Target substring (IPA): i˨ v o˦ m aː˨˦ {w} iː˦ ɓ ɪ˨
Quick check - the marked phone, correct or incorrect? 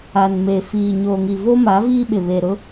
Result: incorrect